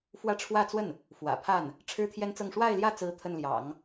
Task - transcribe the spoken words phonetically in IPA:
fwä˥˧ʈ͡ʂʰwä˥˧t͡swə˥˩n | fwä̰˨˩pʰa˥˩n | ʈ͡ʂʰɻ̩˥t̪ʰjɛ˥nt͡sɤ˥˧ŋ ʂwa˥˧ɪ̯ljä˥˩t͡sɹ̩˧˥ t̪ʰə˥˩nljɑ̰˨˩˦ŋ

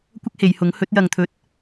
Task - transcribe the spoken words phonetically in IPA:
kʷɐ˥k̚he˨˧jhʊ˨˥ŋ hɵ˨˥t̚ jɐ˨ŋt̪ʰɵ˨˥t̚

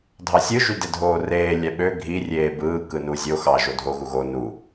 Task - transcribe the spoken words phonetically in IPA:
dʱɑsʲɯ ʒydedʱoːreː lʲæɓø ɡʱi rʲeːbɯː kɯnu zʲo xɑ ʒodʱo ɣuɣo nu

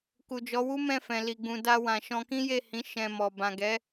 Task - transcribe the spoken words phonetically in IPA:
ku˨d͡ʒɔ˨˦wu˦ mɛ̃˦˨fɛ̃˨ li˨ɡ͡bũ˨ da˧wã˨ ʃɔ̃˧kĩ˦je˦˨hĩ˨˦ ʃɛ̃˧mɔ˨ bã˨ɡɛ˨˦

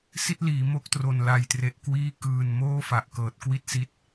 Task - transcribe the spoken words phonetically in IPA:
si˥˩t̚liː˩˦ mo˥˩k̚tro˨˩n la˨˩jtre˨˩ʔkwiː˥˩ kɯː˨˩n moː˥˩fa˨˩ʔkɤː˨˩t̚ kwi˥˩t̚si˦˥t̚

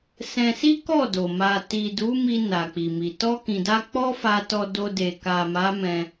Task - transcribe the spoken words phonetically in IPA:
sɛ̃˧si˦kɔ˦˨do˨ ma˨ti˨ du˨˦mi˧ na˨k͡pi˨mi˨ tɔ˧kĩ˨da˧ k͡pɔ˦fa˧tɔ˧ do˧ de˨ ka˨ma˨˦ mɛ̃˧

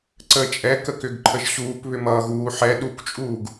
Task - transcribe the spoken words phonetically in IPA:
ǀəːt͡ʃʼɛ kəkʏɡǃʰəʒɕuːp βʏmʌːɣuːħɛ ɗukt͡ʃʼuːɡ

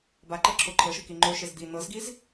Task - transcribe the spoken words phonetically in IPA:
baǃɤ ǁʰoǃʰɤʃɯ kiŋ͡ǃoʃez d̪i n̪ɤzɡiz

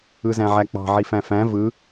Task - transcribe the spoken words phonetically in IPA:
ɯzæ̃ʕæk͡pɑ̤ ʕifæ̃fæ̃ vɯ

